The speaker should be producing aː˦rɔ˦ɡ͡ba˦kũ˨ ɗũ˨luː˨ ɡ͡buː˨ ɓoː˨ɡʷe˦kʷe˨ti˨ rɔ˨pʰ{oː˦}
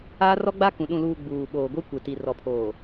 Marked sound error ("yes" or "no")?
yes